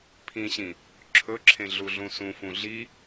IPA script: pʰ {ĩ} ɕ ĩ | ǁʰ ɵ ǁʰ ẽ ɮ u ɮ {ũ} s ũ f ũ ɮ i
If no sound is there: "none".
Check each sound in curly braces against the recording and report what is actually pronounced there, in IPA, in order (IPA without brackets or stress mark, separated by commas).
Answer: ĩ, ũ